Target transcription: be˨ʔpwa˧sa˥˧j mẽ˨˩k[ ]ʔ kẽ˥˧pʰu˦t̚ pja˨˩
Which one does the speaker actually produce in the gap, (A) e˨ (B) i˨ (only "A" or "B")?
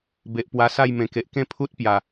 A